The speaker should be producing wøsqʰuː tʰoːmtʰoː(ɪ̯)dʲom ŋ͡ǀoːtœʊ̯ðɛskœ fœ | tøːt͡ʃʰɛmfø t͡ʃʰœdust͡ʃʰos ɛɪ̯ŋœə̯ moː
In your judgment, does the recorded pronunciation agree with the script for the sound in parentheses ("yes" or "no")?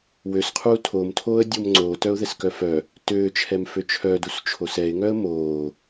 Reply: no